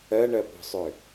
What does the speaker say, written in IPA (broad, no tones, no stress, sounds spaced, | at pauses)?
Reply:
ɜ ɳ ɜ p ɔ̤ sˤ ʏ